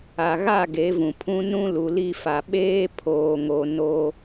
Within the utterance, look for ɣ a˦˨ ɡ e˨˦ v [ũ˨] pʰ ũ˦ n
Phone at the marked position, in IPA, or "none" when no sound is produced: ũ˨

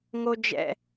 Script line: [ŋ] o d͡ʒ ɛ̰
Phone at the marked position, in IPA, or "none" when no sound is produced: ŋ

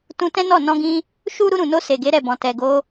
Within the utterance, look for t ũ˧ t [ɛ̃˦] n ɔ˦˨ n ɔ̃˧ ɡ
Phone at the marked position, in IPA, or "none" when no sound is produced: ɛ̃˦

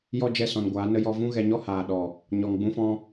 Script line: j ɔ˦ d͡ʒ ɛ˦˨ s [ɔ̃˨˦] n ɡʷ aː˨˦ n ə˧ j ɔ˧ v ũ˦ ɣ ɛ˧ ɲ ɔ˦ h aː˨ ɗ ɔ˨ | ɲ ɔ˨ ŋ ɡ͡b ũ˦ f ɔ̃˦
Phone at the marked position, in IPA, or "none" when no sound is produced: ɔ̃˨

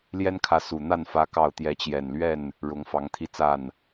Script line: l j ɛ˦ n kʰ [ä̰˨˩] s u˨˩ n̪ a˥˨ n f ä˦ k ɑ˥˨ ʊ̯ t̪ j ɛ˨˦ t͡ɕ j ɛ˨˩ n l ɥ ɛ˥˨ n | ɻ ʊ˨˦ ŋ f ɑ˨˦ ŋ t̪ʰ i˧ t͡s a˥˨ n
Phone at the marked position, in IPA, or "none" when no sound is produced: ä˨˦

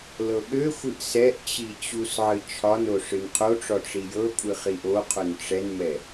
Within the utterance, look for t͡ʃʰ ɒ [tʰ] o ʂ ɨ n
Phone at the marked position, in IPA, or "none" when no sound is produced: n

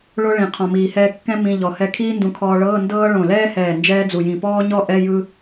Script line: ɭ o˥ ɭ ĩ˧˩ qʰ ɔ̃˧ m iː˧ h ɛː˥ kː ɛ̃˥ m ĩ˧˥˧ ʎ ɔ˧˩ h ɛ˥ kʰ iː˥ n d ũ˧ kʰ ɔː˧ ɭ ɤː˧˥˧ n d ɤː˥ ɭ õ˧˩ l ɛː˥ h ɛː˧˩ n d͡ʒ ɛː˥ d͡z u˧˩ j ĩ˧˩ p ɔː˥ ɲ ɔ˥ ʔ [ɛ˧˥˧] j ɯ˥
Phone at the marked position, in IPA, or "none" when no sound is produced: ɛ˧˥˧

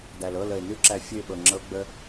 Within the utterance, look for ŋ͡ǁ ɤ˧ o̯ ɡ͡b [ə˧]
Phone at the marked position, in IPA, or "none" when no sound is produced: ə˧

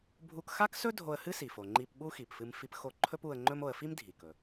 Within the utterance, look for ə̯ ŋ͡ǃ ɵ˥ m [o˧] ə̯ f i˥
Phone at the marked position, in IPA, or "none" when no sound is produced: o˧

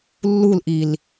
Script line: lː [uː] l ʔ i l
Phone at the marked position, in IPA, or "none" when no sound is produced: u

